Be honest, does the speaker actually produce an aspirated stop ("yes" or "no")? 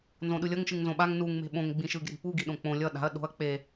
no